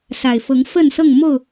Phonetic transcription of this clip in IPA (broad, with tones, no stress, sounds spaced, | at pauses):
s a˨˩ ɪ̯ f ɤ˨˦ ŋ f ə˥˨ n s ɤ˥˨ ŋ m o˥˨ ʊ̯